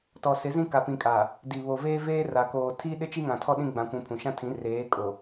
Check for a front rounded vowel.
absent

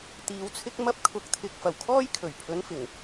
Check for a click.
absent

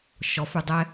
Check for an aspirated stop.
absent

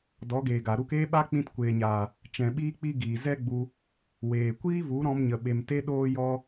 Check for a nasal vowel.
present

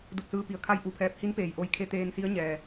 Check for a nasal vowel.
absent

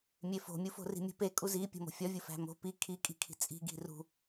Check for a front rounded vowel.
absent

